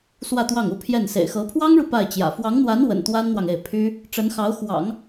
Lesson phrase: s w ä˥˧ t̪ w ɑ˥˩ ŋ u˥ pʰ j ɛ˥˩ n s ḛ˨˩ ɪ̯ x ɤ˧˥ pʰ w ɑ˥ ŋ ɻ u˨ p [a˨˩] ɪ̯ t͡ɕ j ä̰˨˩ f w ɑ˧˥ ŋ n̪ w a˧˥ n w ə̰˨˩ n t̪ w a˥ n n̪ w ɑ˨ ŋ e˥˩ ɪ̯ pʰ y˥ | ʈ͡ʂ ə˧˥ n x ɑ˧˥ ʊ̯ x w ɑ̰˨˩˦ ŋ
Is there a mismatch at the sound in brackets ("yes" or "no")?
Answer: yes